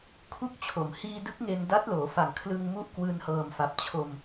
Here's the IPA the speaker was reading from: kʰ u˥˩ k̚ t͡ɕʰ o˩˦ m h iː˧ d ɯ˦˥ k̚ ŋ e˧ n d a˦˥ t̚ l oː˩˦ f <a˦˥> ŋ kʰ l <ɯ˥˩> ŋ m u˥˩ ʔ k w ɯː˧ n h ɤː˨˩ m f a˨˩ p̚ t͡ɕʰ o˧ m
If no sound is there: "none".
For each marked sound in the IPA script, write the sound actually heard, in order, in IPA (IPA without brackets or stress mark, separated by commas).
a˨˩, ɯ˧